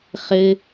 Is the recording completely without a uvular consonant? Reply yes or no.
no